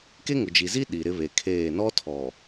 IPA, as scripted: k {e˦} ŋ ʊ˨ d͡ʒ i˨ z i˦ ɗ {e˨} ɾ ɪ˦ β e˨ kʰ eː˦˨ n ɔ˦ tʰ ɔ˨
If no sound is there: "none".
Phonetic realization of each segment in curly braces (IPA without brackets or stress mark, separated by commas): e˦, i˨